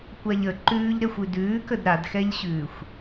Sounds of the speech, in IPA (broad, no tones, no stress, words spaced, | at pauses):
kʷaʎə ǃʉːʎɾɛxʷʉ dʉːkəd ɾadxɛʎɕʉːxʷ